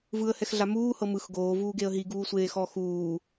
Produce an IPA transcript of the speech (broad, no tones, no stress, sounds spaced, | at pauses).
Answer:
v ɯ ə̯ h ɛ x ɮ a m uː h ɤ m ɯ x ɡ oː v uː ɡ e ə̯ ɦ i ɡ uː sʷ eː x ɔ x uː